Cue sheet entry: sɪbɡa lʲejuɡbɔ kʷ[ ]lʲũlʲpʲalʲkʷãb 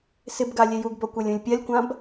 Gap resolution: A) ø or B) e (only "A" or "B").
B